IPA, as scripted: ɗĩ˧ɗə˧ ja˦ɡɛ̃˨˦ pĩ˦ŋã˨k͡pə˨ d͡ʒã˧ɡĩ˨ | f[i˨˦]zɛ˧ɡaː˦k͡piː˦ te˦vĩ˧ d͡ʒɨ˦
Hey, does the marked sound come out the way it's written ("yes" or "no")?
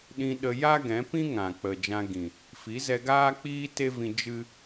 yes